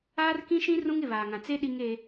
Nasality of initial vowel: oral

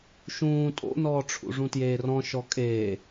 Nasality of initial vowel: nasal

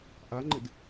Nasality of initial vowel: oral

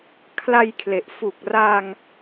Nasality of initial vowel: oral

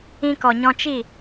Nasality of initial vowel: nasal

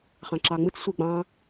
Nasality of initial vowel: nasal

